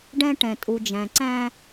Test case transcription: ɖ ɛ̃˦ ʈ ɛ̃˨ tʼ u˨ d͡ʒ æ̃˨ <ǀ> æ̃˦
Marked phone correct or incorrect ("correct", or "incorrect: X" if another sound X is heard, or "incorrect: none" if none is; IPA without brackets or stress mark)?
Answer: correct